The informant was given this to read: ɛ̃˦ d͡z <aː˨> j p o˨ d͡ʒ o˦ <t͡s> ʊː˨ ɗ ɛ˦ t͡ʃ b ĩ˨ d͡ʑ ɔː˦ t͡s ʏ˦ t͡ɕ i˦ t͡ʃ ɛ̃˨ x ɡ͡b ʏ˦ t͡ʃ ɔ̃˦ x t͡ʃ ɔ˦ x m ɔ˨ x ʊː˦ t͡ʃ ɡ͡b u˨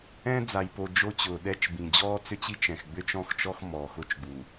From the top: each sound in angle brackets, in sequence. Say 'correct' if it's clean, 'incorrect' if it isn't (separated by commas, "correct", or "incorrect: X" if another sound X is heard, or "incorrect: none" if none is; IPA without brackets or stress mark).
incorrect: a˨, incorrect: t͡ɕ